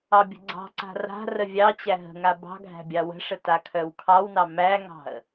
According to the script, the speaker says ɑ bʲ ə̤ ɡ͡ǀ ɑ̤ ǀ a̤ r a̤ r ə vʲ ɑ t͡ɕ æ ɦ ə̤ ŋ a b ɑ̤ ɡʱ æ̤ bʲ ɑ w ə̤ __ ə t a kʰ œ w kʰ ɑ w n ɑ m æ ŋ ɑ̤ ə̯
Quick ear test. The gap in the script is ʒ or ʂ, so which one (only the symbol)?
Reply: ʂ